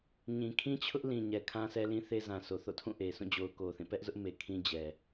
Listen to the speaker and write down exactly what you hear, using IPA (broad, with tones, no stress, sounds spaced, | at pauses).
ɲ ĩ˨ kʰ ĩ˦ t͡ɕʰ ʊ˦ ʔ l ĩ˨ ɲ ɛ˨ kʰ ã˦ s ɛ˦ l ĩ˦ θ e˦ z ã˨ sʰ o˨ θ o̰˦˨ tʰ ũ˦˨ ʔ e˨ sʰ ũ˦˨ d͡ʑ o˨ ʊ̯ k o˨ θ ĩ˦˨ p ɛ˦ ʔ z ʊ˦ ʔ m e˨ kʰ ĩ˦ d͡ʑ ɛ˨